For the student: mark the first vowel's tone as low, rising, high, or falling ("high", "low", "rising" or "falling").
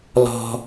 high